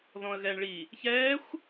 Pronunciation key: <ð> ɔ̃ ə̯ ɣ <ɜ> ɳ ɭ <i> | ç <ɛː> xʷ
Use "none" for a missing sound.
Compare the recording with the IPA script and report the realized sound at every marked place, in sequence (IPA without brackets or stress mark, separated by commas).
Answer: ð, ɛ, i, ɛː